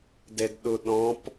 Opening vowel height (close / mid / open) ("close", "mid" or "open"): mid